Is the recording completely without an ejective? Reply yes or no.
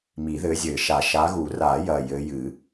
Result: yes